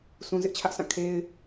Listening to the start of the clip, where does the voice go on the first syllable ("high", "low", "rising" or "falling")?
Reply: low